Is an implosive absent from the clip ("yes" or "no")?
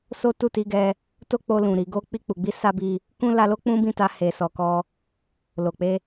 yes